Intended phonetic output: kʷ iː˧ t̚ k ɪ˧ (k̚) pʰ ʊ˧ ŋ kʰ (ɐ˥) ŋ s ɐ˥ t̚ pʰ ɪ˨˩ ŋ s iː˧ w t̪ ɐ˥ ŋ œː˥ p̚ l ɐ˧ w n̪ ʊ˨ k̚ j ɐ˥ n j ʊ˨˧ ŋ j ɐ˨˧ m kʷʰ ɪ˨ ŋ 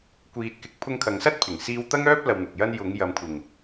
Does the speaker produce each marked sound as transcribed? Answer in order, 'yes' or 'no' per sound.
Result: yes, no

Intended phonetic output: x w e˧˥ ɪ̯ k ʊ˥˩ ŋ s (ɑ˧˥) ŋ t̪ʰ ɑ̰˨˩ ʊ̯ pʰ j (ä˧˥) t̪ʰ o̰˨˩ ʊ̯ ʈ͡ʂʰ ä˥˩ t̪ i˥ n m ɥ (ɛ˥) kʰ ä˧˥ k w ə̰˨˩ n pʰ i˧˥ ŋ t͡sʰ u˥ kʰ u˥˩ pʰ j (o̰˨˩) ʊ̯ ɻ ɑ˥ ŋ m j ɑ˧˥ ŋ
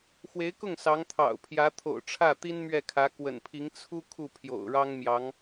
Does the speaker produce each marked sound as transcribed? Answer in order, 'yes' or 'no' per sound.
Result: yes, yes, no, yes

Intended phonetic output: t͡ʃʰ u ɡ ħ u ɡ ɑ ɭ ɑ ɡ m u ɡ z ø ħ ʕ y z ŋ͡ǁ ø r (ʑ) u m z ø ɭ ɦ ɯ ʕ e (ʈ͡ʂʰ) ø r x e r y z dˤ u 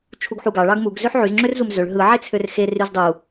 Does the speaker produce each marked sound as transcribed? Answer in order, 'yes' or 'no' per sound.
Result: no, no

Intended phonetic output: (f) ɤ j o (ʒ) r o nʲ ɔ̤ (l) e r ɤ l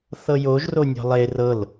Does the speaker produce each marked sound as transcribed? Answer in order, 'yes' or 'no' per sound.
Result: no, yes, no

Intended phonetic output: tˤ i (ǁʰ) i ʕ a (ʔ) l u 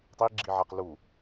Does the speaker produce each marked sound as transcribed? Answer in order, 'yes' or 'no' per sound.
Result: no, no

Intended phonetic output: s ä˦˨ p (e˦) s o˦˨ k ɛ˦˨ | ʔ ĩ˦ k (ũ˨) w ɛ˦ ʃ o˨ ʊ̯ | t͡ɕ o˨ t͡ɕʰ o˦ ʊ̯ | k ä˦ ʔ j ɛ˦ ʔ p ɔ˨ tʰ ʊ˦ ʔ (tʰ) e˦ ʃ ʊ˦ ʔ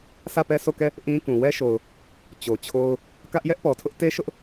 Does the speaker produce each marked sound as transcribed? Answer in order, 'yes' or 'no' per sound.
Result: no, yes, no

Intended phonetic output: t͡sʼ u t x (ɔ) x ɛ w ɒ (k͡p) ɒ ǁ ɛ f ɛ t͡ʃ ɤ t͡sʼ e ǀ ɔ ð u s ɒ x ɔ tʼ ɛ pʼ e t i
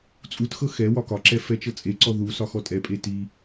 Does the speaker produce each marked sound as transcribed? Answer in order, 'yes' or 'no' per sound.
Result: no, no

